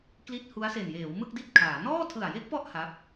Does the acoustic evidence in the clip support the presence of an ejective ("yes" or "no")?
no